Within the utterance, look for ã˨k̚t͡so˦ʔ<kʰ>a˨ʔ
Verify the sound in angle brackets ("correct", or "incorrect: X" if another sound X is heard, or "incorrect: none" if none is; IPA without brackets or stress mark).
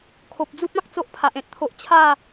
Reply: incorrect: pʰ